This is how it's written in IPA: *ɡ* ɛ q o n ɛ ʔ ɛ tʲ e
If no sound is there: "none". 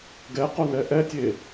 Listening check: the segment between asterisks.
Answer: ɡ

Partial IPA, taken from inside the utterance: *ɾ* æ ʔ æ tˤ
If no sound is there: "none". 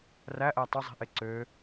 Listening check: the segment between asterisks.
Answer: r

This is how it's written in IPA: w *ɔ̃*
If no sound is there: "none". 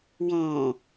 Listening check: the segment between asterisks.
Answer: ɔ̃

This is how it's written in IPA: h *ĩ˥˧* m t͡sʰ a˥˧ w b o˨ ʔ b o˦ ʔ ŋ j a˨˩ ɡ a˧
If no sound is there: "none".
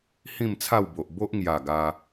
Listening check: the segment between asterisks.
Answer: ĩ˥˧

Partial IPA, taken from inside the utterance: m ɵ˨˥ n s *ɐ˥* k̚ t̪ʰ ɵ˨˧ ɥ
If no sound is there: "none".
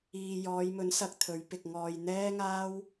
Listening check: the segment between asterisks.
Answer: ɐ˨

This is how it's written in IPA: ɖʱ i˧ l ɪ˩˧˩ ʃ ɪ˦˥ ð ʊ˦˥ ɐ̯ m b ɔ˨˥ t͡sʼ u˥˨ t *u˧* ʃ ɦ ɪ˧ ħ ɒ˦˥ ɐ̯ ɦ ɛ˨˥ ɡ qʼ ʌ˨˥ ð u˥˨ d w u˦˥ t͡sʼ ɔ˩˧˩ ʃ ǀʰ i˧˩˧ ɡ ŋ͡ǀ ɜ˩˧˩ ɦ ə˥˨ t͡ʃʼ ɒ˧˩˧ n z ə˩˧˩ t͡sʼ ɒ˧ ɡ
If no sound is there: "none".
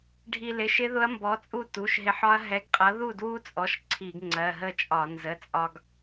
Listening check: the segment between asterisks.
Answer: u˩˧˩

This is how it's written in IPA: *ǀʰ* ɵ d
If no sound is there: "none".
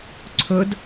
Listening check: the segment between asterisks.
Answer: ǀʰ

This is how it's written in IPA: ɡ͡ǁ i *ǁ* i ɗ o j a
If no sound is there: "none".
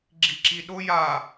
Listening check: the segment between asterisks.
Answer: ǁ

